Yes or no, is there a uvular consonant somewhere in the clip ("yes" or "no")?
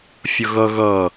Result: no